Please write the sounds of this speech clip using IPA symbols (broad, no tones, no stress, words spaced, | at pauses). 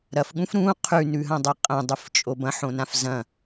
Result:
ɾɐfɠũf ɾũ qʰʉnʉɦɐ̃dˤɐ qʼɐ̃dˤɨft͡ʃʼob ɐ̃ħõnãf zɐ̃